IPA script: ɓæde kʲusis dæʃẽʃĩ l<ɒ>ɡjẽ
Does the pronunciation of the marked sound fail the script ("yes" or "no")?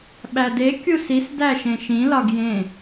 no